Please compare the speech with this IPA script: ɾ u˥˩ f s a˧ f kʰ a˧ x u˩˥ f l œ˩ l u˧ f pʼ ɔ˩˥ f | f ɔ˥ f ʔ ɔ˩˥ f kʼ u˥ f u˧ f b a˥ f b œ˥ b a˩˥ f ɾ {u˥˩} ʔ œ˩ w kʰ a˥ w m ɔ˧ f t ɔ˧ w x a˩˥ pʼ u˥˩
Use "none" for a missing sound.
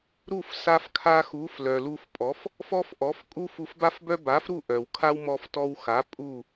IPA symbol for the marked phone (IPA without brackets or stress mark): u˥˩